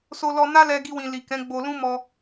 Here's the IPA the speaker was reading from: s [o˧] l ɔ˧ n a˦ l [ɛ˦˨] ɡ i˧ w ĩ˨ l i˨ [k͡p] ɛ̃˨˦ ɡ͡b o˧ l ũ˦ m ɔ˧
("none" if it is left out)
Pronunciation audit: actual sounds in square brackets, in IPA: o˧, ɛ˧, k

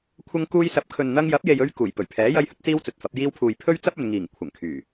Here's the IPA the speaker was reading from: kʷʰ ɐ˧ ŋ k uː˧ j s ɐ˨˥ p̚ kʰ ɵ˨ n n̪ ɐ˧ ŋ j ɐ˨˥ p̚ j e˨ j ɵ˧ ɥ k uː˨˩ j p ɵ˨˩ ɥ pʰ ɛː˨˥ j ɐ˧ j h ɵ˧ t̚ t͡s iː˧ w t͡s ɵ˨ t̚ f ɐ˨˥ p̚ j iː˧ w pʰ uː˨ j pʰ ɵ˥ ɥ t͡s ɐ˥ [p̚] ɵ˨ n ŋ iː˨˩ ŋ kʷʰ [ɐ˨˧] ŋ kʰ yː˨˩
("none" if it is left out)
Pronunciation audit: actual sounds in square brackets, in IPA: p̚, ɐ˨˩

